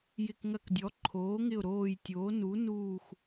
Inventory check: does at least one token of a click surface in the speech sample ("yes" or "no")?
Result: yes